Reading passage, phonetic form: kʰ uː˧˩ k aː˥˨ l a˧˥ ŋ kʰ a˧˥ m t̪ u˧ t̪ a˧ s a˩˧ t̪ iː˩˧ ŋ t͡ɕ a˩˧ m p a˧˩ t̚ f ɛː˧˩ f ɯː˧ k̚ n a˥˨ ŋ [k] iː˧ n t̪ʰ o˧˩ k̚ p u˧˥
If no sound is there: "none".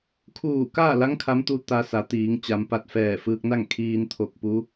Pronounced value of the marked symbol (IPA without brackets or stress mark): kʰ